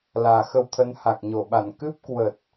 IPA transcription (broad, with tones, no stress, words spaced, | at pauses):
laː˨˩xə˧wt̪ʰə˨˦nha˨˩k̚ ɲo˧˩ɓa˧˩n kɨ˦˥p̚kwə˨˩t̚